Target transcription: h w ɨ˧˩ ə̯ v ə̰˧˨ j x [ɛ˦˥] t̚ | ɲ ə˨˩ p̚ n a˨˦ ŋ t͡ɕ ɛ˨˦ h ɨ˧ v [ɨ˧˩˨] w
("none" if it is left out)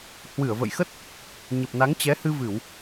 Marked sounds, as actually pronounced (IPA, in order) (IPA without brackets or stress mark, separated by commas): ə˦˥, ɨ˧˩˨